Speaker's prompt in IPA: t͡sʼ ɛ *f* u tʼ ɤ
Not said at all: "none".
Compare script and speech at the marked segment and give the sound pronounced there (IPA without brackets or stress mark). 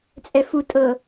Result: f